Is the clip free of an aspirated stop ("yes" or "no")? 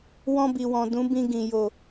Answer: yes